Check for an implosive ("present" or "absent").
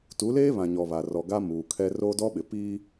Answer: present